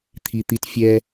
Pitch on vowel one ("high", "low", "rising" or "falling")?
low